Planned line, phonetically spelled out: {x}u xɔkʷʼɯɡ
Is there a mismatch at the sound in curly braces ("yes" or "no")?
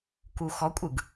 yes